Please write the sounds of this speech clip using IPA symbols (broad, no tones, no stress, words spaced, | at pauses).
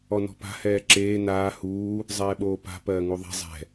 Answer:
ɔnɔ̤pa̤ hɛːǁeː naː huː | zˤɛːɓoːpa̤ pɜːŋuðˤɛ̤ zˤɛ̤